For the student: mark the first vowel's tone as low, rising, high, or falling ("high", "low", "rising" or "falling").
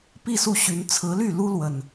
falling